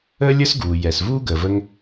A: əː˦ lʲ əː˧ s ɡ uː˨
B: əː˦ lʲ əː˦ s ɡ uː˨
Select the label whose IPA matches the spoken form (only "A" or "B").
B